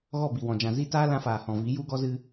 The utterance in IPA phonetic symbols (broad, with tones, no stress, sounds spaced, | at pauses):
ɣ ɔ˦˨ b i˨ w ɔ̃˨ d͡ʒ ã˨ z i˧ t aː˦ l ã˧ f aː˨ h ɔ̃˨ v i˨˦ j u˦ ɡ ɔ˦ z ɨ˧